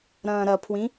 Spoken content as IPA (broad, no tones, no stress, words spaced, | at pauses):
ɾɐ̃ːɾɐpʰwĩ